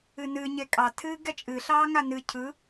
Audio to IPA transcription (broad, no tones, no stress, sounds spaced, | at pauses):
ɨ n ɨː ɲ e kʼ ɑ tʰ ɨː ɡ ɛ t͡ʃʼ ɨ ɬ ɑː ŋ a n ɨ cʰ ɯ